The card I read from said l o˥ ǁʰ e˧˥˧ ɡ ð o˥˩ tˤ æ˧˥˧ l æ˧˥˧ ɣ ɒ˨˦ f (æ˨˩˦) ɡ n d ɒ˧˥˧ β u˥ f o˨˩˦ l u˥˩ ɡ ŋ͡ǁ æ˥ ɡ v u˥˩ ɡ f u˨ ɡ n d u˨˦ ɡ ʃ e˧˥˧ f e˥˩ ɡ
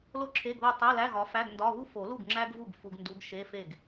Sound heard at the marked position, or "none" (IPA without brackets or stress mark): æ˧˥˧